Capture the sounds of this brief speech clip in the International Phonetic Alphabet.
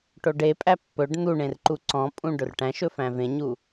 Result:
ʈ o ɖ e pʼ æ pː ɵ ɖ n̪ u ɳ ẽ r ǃ u ǀ ɔ̃ pʼ ũ ɖ ɵ r ʈ æ̃ ʃ ɵ f æ̃ v ẽ ɲ u

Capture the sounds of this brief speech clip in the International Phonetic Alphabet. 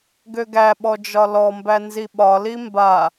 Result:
ɡ ø ɡ æ ɓ ɔ d͡ʒ ɒ l ɔ m b æ n z i ɓ ɒ l i m b a

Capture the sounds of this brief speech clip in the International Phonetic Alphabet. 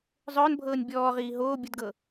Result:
zˤ œː n bʱ ɤː nʲ bʲ ɔː ʁ iː ɦ oː bʲ ʊ d ɡ ɤ

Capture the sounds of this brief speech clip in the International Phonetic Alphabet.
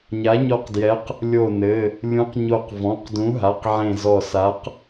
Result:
ɲ a˨˥ ɲ ɔ˧˩ q d j ɛ˨˥ q | lʲ o˧˩ n ɘ˩˧˩ | lʲ ũ˨˥ q ɲ o˧˩ q v ɔ̃˩˧˩ q d ũ˨˥ ɦ a˩˧˩ q ʕ ẽ˧˩ z ɔ˧˩ s a˨˥ q

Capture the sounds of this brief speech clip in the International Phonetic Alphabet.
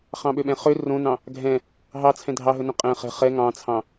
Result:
χ ɑ̃ ɓ ø ɓ ɛ̃ χ ø r õ n ɑ̃ | ɡʱ ɛ̃ | ɦ ɑ t͡sʰ ɛ̃ dʱ ɑ ɦ ɵ n œ̃ qʼ ɛ̃ χ ɛ̤ χ ɛ ŋ ɑ̃ t͡sʰ ɑ̃

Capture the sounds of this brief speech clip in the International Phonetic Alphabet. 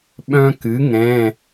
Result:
ɓ œ̃˦ k ɨ˩˥ ŋ ɛ̃˩˧˩

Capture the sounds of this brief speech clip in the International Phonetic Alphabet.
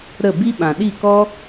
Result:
ɾ ə˦˨ b i˦ ɓ ã˨ ɗ i˦˨ k ɔ˦

